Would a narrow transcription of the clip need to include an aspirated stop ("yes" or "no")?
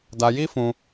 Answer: no